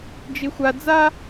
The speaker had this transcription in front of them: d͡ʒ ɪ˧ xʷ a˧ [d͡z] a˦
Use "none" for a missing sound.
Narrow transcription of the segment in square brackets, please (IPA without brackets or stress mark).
d͡z